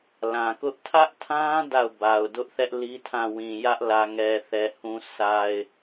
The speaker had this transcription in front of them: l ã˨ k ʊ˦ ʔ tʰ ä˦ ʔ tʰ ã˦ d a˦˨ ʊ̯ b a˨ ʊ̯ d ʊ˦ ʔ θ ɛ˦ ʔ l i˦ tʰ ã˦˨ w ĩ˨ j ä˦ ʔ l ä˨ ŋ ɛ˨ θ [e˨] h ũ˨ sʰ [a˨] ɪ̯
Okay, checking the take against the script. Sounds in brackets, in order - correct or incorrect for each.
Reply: incorrect, correct

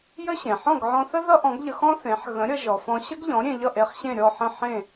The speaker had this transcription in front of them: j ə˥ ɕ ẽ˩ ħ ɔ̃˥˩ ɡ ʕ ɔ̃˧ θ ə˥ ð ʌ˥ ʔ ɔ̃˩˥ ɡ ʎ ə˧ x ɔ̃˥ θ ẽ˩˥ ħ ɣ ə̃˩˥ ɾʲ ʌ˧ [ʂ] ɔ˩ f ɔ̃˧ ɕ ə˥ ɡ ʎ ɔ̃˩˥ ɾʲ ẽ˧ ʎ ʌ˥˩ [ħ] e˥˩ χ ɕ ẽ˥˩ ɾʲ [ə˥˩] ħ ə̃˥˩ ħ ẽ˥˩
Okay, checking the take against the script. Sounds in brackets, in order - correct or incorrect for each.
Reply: incorrect, incorrect, incorrect

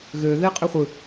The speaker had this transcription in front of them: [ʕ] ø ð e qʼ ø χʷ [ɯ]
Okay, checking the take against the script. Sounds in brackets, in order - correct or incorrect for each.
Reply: incorrect, correct

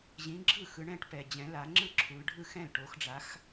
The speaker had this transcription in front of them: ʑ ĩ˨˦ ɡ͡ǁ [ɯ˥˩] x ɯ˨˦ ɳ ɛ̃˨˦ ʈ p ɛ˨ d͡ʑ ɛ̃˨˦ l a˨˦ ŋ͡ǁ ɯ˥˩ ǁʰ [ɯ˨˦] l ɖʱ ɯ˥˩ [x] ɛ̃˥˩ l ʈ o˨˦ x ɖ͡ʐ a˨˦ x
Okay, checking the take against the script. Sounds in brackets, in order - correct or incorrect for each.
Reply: correct, incorrect, correct

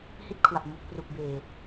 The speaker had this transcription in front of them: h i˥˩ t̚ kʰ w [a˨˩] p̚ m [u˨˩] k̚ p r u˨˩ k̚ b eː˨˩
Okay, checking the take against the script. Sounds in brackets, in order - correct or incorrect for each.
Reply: correct, correct

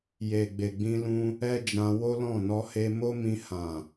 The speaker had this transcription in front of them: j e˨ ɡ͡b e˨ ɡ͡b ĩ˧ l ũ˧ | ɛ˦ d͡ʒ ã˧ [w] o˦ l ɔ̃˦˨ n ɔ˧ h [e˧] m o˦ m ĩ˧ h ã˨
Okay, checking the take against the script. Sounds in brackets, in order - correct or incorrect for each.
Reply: correct, correct

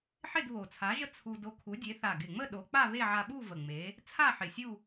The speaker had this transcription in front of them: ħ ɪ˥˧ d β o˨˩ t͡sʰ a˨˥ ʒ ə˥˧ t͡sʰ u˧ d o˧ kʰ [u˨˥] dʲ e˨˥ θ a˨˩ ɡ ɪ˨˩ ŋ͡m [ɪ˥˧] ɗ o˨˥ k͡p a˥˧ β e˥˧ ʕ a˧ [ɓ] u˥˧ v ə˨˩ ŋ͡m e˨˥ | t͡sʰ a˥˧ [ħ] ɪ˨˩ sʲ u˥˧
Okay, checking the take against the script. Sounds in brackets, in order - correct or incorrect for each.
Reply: correct, incorrect, correct, correct

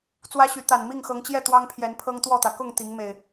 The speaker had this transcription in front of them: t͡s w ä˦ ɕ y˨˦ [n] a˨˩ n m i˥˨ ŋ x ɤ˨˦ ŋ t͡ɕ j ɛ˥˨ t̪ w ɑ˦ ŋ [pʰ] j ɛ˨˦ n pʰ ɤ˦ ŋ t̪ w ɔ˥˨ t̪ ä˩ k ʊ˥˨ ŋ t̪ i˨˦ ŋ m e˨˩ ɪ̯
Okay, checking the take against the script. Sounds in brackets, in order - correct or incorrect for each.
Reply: incorrect, correct

